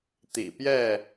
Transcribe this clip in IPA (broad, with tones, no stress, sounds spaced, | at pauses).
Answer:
t̪ ḭ˨˩ p j ɛ˥˨